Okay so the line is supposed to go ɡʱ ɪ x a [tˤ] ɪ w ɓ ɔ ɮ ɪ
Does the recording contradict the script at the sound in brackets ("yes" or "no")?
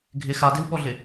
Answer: yes